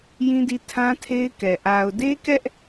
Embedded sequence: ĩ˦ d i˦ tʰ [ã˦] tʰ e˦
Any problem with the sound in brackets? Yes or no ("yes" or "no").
no